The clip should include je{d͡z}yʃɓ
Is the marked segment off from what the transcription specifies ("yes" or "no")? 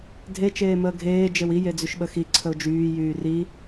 no